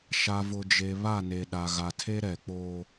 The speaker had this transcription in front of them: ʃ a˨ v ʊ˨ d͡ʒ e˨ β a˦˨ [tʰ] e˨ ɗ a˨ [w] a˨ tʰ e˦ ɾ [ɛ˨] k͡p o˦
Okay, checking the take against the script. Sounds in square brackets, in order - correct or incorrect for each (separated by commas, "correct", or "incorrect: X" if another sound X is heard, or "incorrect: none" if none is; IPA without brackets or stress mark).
incorrect: n, incorrect: ɣ, correct